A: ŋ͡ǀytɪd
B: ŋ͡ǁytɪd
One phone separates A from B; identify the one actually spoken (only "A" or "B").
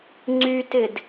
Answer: A